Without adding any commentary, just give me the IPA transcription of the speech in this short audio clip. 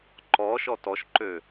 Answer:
ǃɔʃɔ tɔʃǃø

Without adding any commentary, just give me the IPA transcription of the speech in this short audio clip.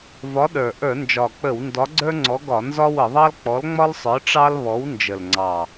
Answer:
vɒ˨˥ɗə˞˨˩ ʔə˞˧˩˧nd͡ʒɒ˨˩k͡pə˧˩˧w ndɒ˨˥ɡ͡ǀə˞˦ŋ͡ǀɔ˨˥ɡɒ˧˩˧ nzɒ˦wə˧˩˧ðˤɑ˦l k͡pɔ˨˥lŋ͡mɒ˦lsˤə˞˨˥ ʈ͡ʂɑ˦lβɔ˨˥w nd͡ʒə˨˩lŋ͡ǀɑ˨˩

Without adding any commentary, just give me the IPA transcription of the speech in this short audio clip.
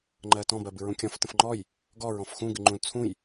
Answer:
ŋ͡ǃɜtɔ̃ bɜbɨɹũkʲɔ̃f tə̃fŋ͡ǃɔj | ɡɔ ɹɔ̃fxũ ɡɨŋ͡ǃũl t͡sʰũj

